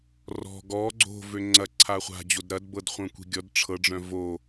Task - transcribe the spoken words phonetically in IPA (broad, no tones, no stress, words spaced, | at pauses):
rɔ̤ ɡɔ ɡ͡ǀo̤ vøŋ͡ǀɐ ǀʰaχʷa̤ d͡ʑodɾɐdbɤd χʷœ̃kʷi̤ɡʲɔd ʈ͡ʂʰɤɖ͡ʐœ̃ vo